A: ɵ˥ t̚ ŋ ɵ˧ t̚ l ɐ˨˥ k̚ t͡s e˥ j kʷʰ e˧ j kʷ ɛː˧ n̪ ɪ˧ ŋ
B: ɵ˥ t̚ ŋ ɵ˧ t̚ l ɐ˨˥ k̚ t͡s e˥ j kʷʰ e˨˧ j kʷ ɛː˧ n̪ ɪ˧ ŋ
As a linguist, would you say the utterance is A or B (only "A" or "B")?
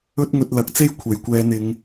B